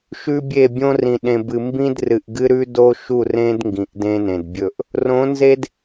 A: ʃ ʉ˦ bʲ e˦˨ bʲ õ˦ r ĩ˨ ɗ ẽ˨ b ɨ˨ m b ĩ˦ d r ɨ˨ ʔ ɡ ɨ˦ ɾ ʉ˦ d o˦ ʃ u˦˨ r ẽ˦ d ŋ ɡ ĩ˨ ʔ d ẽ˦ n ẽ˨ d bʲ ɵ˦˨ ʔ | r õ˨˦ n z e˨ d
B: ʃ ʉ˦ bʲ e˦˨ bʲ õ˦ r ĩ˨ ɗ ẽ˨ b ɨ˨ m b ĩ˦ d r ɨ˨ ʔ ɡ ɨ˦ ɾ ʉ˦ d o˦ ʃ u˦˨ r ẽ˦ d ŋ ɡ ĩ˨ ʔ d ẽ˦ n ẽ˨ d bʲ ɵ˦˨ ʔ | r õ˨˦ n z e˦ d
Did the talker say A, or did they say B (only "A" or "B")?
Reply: B